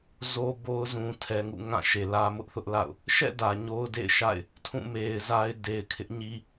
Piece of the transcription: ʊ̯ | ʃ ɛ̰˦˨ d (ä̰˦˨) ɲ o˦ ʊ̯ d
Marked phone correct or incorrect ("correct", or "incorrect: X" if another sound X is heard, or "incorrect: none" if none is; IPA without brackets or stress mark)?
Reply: incorrect: ä˨